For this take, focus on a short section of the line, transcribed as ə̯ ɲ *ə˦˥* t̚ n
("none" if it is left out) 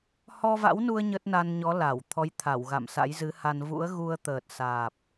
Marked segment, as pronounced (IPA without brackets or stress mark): ə˦˥